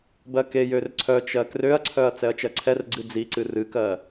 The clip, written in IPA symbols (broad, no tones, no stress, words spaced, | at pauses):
bɜkejør ǀʰœt͡ʃɜ krøɐ̯ǀʰœɐ̯ t͡sɛɐ̯t͡ʃɜǀʰɛrɡ͡ǀɨ d͡ziǀɨ rɨkɜ